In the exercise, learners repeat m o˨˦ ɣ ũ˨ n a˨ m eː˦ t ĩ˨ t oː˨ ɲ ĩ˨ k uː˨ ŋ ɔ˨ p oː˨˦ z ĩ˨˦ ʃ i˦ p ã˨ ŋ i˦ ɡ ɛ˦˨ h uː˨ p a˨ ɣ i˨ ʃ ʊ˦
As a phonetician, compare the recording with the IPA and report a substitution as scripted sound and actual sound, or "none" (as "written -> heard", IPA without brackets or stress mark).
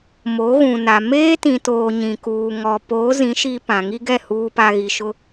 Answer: none